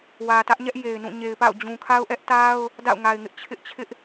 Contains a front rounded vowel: no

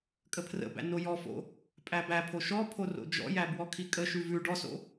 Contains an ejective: yes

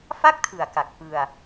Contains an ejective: no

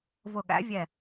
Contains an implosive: yes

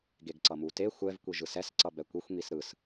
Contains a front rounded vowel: no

